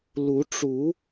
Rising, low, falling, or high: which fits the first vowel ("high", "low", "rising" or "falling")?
rising